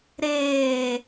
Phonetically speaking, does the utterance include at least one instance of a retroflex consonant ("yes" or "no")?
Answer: no